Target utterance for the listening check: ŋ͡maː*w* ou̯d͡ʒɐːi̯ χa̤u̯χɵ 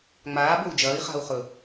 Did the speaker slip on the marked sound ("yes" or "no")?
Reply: yes